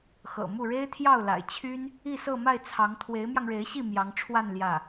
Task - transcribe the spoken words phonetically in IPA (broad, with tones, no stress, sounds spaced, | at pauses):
x ɤ̰˨˩ m u˥˩ ɻ e˥ ɪ̯ t̪ʰ j ɑ˥˩ ʊ̯ l a̰˨˩ ɪ̯ t͡ɕʰ y˥ n | i˥˧ s ɤ˥˧ m a˥˩ ɪ̯ t͡sʰ ɑ˧˥ ŋ t̪ʰ w e˧˥ ɪ̯ m j ɑ˧ ŋ ɻ e˧˥ ɪ̯ ɕ i˥˩ m j ɑ˧˥ ŋ ʈ͡ʂʰ w a˥˧ n l j ä˥˩